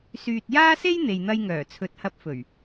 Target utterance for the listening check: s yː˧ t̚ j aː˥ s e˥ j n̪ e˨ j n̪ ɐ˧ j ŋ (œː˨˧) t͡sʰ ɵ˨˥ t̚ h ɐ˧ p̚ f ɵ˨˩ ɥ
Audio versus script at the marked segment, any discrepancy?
yes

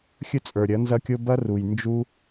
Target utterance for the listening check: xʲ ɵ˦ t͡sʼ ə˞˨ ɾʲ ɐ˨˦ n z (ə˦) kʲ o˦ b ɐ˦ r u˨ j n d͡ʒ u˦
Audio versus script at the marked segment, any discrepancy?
yes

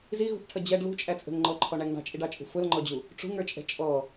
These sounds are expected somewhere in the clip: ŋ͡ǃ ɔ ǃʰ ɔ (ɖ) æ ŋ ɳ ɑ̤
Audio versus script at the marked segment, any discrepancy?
yes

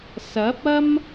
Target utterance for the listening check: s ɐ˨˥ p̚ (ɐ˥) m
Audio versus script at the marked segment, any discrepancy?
no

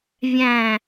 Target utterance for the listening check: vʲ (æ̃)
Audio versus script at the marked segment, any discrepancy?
no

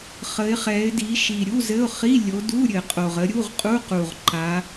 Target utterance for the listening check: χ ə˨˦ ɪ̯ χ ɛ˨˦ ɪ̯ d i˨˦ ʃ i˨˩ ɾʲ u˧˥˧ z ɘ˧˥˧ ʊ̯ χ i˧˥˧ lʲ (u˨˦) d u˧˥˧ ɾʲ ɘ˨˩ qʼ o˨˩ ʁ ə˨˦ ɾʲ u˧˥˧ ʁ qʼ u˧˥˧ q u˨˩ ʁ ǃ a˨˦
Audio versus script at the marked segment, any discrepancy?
yes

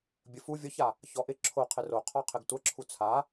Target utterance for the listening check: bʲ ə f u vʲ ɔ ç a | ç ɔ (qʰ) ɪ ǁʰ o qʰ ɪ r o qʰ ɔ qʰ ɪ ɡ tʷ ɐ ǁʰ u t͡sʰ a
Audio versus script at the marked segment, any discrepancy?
yes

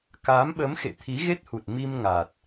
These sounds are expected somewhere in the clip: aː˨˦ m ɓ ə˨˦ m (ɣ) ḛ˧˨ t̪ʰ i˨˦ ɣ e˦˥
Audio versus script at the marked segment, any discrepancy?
yes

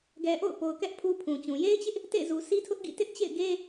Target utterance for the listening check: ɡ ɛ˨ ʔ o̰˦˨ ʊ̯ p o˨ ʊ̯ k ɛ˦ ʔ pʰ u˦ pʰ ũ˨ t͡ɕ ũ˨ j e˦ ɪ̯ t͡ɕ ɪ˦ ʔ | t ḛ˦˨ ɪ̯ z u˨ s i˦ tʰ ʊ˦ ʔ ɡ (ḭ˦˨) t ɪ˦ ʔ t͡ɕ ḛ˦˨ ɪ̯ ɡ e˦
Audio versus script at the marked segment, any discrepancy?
no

